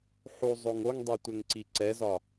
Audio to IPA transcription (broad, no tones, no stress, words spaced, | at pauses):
ħu zˤoŋoŋdˤe tʷɛŋǀiǀɛzɒ